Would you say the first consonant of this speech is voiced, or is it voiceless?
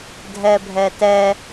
voiced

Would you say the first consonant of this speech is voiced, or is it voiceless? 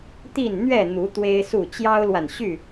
voiceless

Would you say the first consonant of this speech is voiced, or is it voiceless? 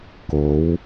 voiceless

